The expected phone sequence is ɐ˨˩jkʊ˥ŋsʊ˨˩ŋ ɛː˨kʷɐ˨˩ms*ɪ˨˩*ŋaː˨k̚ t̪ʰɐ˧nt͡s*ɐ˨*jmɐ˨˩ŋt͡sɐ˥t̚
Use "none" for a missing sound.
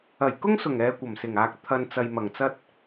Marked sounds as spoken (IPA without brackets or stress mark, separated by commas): ɪ˨˩, ɐ˨